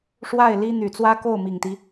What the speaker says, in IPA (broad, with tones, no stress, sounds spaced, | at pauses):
ʂ w a˥˩ ɪ̯ l i˥ n̪ y˨˩ t͡s w ä˥ k o˥˩ ʊ̯ m i˨˩ ŋ t̪ i˦